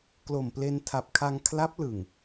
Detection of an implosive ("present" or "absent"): absent